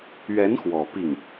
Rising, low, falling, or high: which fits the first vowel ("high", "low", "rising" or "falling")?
rising